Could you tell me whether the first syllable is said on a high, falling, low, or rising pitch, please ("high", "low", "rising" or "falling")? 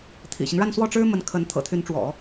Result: low